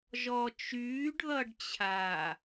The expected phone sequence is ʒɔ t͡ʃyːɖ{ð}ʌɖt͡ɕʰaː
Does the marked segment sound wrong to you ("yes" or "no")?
no